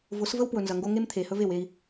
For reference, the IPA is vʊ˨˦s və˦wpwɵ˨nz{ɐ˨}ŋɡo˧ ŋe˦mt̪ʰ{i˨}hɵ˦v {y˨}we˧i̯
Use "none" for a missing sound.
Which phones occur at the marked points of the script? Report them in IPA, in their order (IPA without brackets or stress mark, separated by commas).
ɐ˨, e˨, e˨